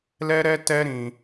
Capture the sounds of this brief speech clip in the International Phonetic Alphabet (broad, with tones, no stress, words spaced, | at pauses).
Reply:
lɛ˦ɾɛ˦ tɛ˦ɾĩ˧